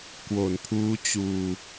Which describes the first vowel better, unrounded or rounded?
rounded